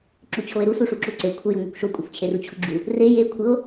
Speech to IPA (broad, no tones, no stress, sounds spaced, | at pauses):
ǁ u t͡ɕʰ o e̯ ɾ u s u ʂ u ǁ u ǀ e kʷʰ ɘ j o ŋ u kʷ ʃ o kʷʼ ɘ f t͡ɕʰ e r u t͡ɕʰ u ɡ͡ǁ u | r e j e kʷʰ ɘ o̯